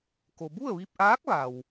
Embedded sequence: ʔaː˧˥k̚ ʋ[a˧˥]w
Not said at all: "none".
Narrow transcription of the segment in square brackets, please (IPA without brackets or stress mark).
a˩